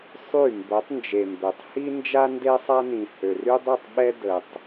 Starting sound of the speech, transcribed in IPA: sˤ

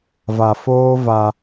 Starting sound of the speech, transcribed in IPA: v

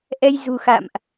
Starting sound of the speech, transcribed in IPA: ʔ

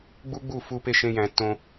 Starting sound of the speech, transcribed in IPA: ɡ͡b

